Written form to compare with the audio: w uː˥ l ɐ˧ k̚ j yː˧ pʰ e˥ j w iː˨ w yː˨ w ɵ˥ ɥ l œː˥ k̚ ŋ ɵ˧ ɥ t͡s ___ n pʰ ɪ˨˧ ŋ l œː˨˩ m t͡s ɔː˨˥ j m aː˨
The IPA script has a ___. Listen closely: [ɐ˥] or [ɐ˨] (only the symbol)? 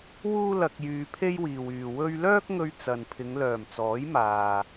ɐ˨